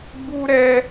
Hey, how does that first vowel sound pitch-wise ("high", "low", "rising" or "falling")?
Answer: high